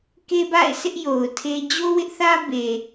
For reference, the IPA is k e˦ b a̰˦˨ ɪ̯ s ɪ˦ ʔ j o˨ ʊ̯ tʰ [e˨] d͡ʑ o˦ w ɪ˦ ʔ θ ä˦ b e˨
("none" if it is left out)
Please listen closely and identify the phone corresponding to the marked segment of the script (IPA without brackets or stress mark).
e˦